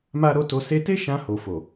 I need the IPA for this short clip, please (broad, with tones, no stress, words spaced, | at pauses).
ma˦ɾo˦ to˧ se˧te˦ ʃã˧ho˨ fo˨